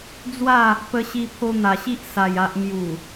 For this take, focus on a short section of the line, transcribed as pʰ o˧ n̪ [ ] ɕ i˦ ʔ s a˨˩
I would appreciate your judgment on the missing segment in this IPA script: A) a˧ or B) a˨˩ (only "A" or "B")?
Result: B